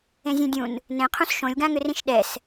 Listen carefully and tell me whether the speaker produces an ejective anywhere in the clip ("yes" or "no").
no